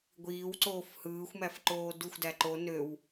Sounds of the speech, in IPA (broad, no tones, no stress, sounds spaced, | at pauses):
ɡʷ iː w ǀ oː f h ɯː xʷ m æ f ǃ oː d u xʷ d æ ǃ o n ø w